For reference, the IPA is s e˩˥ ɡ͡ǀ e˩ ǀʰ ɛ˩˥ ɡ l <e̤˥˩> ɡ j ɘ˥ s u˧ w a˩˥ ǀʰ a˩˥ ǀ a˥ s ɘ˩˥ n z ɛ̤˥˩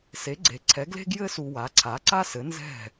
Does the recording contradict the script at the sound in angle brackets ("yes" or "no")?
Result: yes